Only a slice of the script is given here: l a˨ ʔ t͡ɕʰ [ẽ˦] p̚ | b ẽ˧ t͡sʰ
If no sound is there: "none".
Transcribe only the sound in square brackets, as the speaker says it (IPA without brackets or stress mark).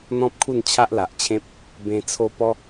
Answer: ẽ˦